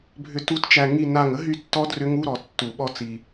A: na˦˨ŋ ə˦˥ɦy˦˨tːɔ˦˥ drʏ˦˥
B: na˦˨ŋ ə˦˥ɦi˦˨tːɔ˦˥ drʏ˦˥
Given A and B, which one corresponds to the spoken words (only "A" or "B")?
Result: A